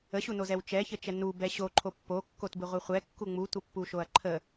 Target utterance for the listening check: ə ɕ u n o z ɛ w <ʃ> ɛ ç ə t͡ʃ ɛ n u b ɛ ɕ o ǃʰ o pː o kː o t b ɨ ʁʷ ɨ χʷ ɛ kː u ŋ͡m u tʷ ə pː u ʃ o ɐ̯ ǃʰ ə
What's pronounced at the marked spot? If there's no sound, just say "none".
t͡ʃ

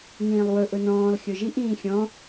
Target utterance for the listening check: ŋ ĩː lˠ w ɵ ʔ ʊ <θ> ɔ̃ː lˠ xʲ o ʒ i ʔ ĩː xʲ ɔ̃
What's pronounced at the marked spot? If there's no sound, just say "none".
n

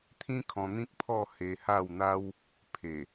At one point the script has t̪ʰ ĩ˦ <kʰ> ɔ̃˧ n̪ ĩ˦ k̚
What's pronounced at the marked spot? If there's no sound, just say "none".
kʰ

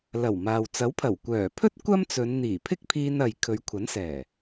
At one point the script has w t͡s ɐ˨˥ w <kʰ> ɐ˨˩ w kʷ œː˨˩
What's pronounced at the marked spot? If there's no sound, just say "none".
pʰ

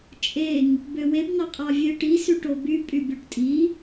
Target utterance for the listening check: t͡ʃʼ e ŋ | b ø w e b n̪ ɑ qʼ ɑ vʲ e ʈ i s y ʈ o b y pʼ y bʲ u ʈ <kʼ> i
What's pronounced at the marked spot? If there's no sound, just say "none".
tʼ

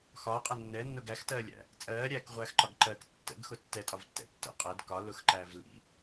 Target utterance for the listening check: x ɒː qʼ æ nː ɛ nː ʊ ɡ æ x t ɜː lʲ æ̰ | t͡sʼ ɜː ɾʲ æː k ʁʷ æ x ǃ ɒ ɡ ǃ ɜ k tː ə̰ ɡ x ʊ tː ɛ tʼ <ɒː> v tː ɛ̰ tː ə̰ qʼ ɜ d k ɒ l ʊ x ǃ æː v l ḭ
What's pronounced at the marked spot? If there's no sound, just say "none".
ɒ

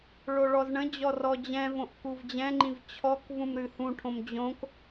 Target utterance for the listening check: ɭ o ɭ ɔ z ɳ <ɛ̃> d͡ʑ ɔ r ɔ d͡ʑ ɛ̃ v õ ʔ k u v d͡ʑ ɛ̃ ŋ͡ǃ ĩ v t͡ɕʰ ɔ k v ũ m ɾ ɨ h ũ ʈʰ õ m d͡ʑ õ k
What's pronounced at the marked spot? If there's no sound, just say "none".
ə̃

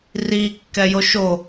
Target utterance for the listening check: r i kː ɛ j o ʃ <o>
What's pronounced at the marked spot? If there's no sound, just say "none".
o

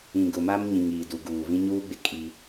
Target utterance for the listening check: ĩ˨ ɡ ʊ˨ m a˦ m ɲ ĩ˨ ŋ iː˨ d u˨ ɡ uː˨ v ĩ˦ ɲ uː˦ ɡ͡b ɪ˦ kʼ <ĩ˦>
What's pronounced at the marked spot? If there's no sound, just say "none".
i˦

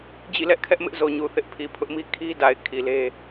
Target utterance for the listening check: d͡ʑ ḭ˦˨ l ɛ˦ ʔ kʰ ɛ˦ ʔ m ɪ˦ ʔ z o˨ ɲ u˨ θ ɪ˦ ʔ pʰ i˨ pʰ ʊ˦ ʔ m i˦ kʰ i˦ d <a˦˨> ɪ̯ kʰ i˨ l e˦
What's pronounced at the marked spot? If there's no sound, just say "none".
a˨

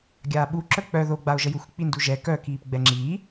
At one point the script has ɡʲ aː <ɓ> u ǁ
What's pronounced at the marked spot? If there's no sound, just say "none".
ɓ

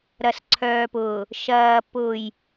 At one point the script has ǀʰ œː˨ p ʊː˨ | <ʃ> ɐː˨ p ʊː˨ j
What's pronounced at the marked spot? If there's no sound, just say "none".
ʃ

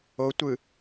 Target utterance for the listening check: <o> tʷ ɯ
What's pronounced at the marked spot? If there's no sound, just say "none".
o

